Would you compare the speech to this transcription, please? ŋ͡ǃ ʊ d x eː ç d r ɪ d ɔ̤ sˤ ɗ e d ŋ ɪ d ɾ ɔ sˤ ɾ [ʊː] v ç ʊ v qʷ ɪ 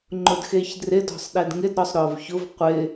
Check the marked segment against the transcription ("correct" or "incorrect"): correct